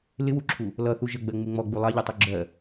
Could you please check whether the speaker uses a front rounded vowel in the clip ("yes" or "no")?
no